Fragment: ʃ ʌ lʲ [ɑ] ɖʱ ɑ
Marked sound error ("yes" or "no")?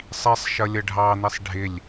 yes